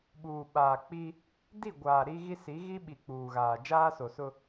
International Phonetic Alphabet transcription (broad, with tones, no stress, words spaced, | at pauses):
ɓuː˨ɓaː˨ k͡pi˦ | di˦˨ ɡʷaː˨ɾi˦ɣi˦ si˨˦ɣi˦ɓi˨ k͡puː˨ɣaː˨ d͡ʒaː˦so˨sʊ˦